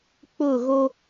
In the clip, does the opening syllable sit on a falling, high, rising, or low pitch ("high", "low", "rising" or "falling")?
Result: falling